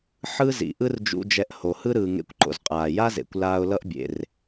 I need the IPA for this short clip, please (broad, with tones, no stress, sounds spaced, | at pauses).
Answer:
ħ ɯ˥ z ḭ˩ ʔ ɯ˥ r d͡ʒ ṵ˧ d͡ʒ ɛ˧ ʔ h o˩ h ɯ˥ ɾ ɯː˩ ŋ ḛ˧ kʷ ǃ o̰˩ z qʼ aː˩ j a˥ z ḛ˩ kʷ l aː˧ ʊ̯ l ʌ˥ ʔ bʲ ḛ˩ r